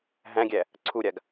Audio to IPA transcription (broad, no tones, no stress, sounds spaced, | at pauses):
ɦ æ̃ ɡʲ æ | ǀʰ u ɾʲ a ɡ